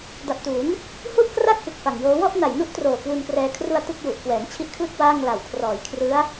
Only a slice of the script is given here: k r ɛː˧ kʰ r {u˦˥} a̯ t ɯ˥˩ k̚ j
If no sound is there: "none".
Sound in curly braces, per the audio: u˧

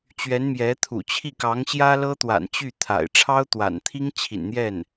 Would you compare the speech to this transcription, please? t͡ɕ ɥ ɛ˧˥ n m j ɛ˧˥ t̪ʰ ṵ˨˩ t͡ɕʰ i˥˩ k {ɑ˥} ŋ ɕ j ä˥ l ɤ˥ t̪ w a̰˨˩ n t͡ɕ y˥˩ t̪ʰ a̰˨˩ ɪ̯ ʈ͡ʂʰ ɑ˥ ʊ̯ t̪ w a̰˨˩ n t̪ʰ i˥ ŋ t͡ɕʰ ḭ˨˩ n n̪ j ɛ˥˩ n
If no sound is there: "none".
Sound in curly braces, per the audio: ɑ˧˥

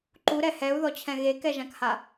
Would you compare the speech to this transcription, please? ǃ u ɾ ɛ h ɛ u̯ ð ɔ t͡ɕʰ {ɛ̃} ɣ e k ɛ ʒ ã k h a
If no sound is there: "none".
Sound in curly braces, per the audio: ɛ̃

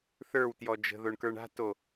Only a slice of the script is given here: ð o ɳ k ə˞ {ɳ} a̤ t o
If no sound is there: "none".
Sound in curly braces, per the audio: ɳ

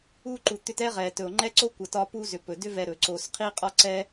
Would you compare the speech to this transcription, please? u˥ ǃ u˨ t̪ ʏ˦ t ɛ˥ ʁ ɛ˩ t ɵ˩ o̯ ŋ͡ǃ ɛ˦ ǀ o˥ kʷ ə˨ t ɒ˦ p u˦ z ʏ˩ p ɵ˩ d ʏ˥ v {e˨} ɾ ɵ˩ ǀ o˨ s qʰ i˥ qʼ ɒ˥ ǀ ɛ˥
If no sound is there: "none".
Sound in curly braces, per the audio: ɛ˨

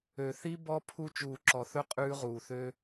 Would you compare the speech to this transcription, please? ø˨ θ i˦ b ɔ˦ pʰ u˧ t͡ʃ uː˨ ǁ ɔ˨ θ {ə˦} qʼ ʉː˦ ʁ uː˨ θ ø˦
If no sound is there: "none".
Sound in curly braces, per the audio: ɵ˦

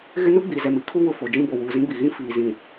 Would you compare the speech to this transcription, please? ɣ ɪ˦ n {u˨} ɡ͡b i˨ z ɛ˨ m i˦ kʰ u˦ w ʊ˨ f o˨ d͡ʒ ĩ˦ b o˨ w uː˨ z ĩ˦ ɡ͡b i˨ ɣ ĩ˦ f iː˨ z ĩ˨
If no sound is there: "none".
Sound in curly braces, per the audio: u˦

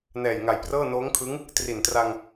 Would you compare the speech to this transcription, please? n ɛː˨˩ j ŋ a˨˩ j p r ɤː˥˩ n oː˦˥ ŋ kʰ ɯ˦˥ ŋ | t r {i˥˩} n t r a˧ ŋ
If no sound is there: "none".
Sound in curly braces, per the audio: i˨˩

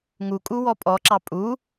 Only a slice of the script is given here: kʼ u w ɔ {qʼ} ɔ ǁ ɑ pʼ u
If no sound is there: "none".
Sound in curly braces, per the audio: pʼ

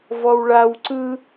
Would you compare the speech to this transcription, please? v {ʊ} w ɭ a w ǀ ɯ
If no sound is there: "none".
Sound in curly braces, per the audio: ɔ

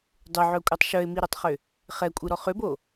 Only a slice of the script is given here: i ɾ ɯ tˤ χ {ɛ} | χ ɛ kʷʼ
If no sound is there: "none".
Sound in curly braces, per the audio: ʏ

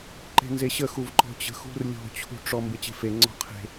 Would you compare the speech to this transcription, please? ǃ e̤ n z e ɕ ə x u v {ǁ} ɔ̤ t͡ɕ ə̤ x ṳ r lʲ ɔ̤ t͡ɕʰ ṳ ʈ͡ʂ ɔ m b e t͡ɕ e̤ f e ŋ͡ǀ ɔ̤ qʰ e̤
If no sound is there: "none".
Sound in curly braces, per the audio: ǃ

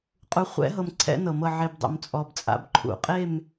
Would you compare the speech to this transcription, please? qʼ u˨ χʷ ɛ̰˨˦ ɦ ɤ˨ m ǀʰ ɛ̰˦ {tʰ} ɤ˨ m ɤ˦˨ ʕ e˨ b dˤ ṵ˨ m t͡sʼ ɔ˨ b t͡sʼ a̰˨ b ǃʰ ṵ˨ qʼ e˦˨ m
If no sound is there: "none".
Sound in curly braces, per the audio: n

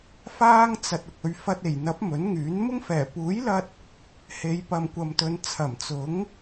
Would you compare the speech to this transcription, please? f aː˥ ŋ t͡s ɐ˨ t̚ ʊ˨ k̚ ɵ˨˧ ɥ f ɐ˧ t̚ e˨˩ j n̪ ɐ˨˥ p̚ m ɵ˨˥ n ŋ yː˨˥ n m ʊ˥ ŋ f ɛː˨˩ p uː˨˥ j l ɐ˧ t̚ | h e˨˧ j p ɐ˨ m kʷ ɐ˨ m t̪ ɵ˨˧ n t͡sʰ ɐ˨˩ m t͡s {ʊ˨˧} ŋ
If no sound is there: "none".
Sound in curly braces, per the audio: ʊ˨˥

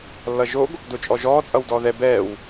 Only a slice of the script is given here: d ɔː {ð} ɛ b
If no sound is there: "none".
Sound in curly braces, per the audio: ð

